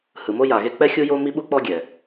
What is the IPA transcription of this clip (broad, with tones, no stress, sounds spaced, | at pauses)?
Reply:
h ɯ˩ m o˥ j a˩ ɣ e˥ k͡p ɛ˥ xʲ u˥ j o˥ m i˥ ɓ u˥ k͡p ɔ˥ ɡʲ ɛ˩